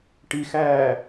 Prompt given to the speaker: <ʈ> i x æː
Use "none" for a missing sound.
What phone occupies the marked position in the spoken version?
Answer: ʈ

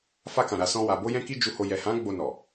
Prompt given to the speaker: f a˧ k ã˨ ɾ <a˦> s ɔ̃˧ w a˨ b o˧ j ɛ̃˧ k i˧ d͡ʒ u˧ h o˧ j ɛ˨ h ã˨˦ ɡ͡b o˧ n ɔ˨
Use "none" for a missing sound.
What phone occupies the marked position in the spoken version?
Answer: a˨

